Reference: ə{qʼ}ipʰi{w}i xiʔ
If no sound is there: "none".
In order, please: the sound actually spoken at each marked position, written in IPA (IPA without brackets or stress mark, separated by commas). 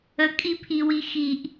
kʼ, w